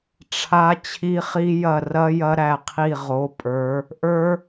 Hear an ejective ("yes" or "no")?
yes